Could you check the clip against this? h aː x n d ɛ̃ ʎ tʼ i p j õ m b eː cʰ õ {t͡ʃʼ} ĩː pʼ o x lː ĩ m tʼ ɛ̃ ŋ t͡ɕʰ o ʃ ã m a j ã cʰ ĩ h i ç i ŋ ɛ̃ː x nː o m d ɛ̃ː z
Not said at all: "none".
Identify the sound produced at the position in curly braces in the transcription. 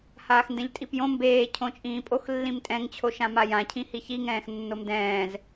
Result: t͡ʃʼ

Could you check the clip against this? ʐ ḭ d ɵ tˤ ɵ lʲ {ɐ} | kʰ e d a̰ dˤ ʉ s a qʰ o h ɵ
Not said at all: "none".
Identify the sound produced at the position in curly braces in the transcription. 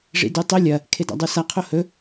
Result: ɐ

